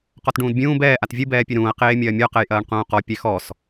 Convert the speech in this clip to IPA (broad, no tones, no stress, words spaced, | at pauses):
qɔtɖũːdbʲũː bɛː ʔatvʲɨ bɛːpʲɨɾũːɐ̯ qeːmʲɐːmʲɔ qɛjʔɐːɳqũːqɔ pʲɛxɔs